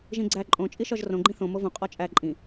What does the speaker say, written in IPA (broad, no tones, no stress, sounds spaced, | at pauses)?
ʒ ĩ ɡ͡ǀ æ ǃʼ õ t͡ʃʼ i ʃ ɒ ʒ r õ ɡ͡ǃ ĩ θ õ m o v õ qʼ ɒ t͡ʃʼ æ ǃʼ ĩ